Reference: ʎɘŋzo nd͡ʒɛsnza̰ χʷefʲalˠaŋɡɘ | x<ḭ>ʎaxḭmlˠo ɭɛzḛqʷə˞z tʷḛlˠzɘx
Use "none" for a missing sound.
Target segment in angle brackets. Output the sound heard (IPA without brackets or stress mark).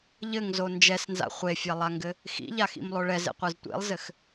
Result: ḭ